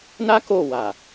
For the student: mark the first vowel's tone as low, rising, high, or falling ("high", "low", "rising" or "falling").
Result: high